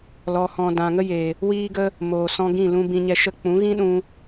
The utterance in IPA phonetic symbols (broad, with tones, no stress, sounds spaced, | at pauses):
l ɔ˧ h ɔ̃˧ d ã˨ ŋ ə˦ j e˨ | w iː˧ ɡ ə˧ | m oː˨ s ɔ̃˧ ɡ ĩ˦˨ l ũ˧ b ĩ˧ ɲ ɛ˧ ʃ ə˦˨ k͡p ũ˨˦ ɣ ĩ˦ ɗ ũ˧